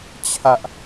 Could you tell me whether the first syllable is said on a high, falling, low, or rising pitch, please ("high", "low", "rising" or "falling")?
high